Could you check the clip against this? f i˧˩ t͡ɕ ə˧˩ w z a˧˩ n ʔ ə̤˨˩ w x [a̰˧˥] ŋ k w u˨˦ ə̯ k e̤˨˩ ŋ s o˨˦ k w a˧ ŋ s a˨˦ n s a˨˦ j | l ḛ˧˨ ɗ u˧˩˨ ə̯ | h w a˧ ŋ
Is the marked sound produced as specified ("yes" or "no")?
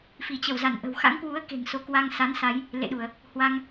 yes